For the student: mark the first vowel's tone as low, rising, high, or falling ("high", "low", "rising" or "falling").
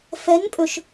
rising